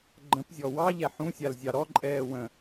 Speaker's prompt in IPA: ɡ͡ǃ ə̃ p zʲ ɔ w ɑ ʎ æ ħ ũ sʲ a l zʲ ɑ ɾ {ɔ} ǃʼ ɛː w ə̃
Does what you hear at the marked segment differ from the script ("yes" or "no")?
no